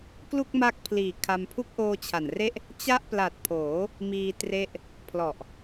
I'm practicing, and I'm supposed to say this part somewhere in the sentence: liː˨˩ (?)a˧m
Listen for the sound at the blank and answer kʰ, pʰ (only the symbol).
kʰ